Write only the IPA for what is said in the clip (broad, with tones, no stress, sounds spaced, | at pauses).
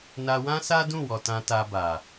n a˧ w ã˦ s a˦ d ũ˦˨ w ɔ˨ t ã˧ t a˧ b a˨